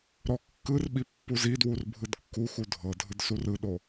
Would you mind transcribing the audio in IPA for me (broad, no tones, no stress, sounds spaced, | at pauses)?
ɾ ɔ kː ɯ r ɓ i pː u z i d w u r bʱ ɯ d kː u x u dʱ ɤ dʱ ɯ d s u r ɯ ɗ o